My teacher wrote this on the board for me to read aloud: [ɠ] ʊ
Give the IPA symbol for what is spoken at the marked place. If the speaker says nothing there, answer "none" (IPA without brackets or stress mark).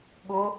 ɠ